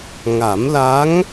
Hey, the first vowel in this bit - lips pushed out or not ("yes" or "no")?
no